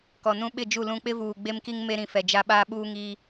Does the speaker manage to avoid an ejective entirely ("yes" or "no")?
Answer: yes